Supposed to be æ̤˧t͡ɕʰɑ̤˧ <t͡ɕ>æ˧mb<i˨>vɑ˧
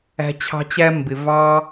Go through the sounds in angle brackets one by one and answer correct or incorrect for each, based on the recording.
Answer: correct, incorrect: ɪ˨

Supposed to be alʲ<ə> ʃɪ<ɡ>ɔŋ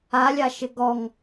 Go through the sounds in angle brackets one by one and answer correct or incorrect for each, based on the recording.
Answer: incorrect: a, correct

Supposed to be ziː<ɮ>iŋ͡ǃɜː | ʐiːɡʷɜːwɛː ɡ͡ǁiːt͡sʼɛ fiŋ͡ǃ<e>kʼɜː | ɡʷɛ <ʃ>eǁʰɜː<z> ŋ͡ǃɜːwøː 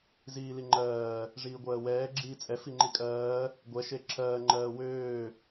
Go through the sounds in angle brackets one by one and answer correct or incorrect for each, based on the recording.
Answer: incorrect: l, incorrect: i, correct, incorrect: none

